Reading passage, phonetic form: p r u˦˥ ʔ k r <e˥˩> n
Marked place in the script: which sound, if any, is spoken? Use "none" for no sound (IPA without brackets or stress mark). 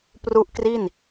i˥˩